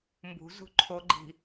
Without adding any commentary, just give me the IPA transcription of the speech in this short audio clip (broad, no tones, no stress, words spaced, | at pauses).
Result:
mbṳzṳ ǃʰoɡ͡ǃi̤